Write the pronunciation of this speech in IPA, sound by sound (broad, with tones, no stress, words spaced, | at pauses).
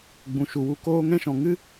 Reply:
ɡ͡bũ˨ʃu˨wu˧ koː˦ ŋɛ̃˦ʃɔ̃˧ ŋɨ˦